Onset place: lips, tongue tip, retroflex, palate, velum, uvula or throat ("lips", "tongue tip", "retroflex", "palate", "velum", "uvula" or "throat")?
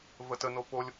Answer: lips